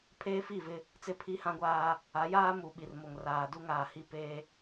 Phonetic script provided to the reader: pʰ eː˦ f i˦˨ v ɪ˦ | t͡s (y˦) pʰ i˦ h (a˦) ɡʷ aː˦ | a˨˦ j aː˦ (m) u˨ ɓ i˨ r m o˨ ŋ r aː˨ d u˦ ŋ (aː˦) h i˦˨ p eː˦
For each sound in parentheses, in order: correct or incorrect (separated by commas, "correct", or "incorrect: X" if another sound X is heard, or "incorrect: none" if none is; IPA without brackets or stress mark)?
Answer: incorrect: ɪ˦, incorrect: ã˦, correct, incorrect: aː˨